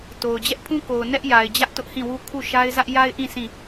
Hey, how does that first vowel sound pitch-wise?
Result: low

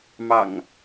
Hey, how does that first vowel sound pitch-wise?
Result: low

